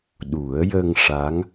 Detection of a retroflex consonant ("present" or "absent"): present